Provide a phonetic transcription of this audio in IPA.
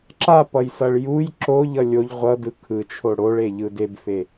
ǁ a p ʌ j s ʌ ɭ j u j ǁ o ʎ ʌ lʲ o ʎ ʁʷ ʌ d ɯ kʰ ɯ t͡ʃʰ o ɽ o ɭ e ʎ ɯ d e b f e

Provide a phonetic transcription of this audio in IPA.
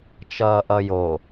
t͡ʃ ʌː ʔ ʌ j o

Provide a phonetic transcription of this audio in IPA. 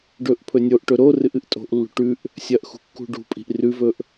ɖ ɵ ʔ pʰ ɵ nʲ o ʔ ʈ ɵ ɾ o r ɨ ʔ ɨ ʔ tʼ o̤ ʔ lː ṳ ʈ ʉ ʔ | sʲ ɐ ʔ x ṳ kː ṳ ɖ ṳ pʼ i̤ ʔ r ʉ v ɵ ʔ

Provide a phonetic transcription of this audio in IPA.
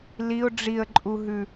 l i ʊ̯ ɖ͡ʐ i ə̯ ǃʼ u ɦ ʉ

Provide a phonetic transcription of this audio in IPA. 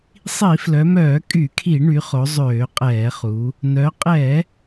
sˤ i˧˩˧ f l œ˩˧ m œː˧˩˧ kʼ y˧˩˧ kʰ i˧˩˧ ɳ y˩˧ χ o˩˧ zˤ øː˧˩˧ qʼ ɛː˧˩˧ χ u˩˧ | n œ˩˧ qʼ ɛ˧˩˧

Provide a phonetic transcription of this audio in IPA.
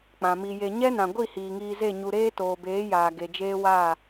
k͡p ã˨ m i˧ j e˧ ɲ ɛ˦ n ã˨ ɡʷ i˦˨ h iː˨ ŋ iː˧ z e˦˨ ɲ u˧ ɾ eː˦ t oː˨ b eː˨˦ j aː˨ ɡ e˨ d͡ʒ eː˦ w aː˦˨

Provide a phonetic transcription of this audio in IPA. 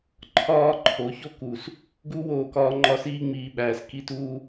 ǃʰ ɒː˦ ǃʰ o˨˦ ç o˦ k u˨ s | ɡ u˦ w oː˧ k ɒː˧ ŋ͡ǃ ɒ˦ s iː˦ ŋ͡m iː˧ ɓ æː˨ s k i˧ t uː˧

